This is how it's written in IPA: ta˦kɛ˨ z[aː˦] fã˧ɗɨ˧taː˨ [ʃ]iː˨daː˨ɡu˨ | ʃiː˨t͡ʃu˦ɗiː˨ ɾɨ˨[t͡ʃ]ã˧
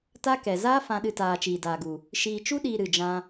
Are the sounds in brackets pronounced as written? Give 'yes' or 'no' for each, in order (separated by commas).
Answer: yes, no, no